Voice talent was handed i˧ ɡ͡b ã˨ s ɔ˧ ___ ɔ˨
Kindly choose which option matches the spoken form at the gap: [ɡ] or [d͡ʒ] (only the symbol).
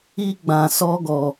ɡ